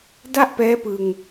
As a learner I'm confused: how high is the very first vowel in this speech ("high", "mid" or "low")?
low